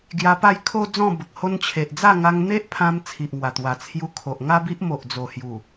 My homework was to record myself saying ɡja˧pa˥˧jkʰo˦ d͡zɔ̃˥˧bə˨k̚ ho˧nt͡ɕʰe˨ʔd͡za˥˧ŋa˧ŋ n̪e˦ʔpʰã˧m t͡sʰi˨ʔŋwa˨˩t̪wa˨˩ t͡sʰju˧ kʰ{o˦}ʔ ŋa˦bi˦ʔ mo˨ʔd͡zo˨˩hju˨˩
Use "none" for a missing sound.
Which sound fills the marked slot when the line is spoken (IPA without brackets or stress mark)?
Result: o˨